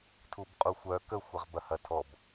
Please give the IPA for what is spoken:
tʰubqʼuxʷœ kə xʷɐʁbɐhɐtʰɔb

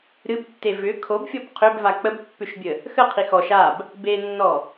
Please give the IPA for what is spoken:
ɾɨbtːe vʏ kʰobfʲɔb qʰʏbva k͡pəbpːʏʃbʲə | xəqʰi xɔʃ ab | benːɔ

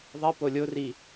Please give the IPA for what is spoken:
ðˤipo lʲori

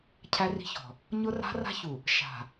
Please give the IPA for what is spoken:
cʰæ˦ri̤˦çɔ̤˨ | ɲʊ˦ra̤˦ra̤˦çu˨ | ʃa̤˨

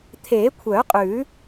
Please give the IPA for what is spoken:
t̪ʰeː˨˩˦kʷʰœ˨˩˦qʼʉ˨˩˦

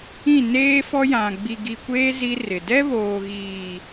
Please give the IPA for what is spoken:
ĩ˦˨neː˦fɔ˦ jã˨ ɡ͡bi˨ɡi˨kʷeː˦ zi˦rɪ˨ dɛ˦βoː˨ɣiː˨

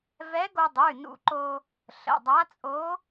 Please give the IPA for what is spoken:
vɛ˧˥ ɡo˧dˤʉ˩˧˩nṵ˧ ǃo˧ | ɬə̰˩˧˩dˤa˧˥t͡sʼo˧˥

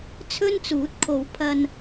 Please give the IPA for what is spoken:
t͡sʰɵ˥nt͡suː˨˥t̚kʰo˨˧w pʰɐ˧n

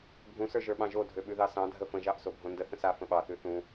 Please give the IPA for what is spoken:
bʱũsə˞ʒə˞ɓɑ̃ ʒo dʱøɓʉðɑsɑ̃ dʱəfə̃ʒɑʔ sobʱõndə θə̃sa fə̃ɓɑθʉ θũ

